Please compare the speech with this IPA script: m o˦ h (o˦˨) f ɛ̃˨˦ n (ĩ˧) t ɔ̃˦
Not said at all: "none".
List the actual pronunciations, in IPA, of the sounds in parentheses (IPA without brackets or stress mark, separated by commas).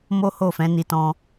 o˦˨, i˧